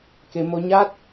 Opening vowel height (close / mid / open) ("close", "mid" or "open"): mid